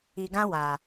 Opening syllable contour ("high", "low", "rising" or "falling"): low